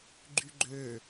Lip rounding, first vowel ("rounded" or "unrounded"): rounded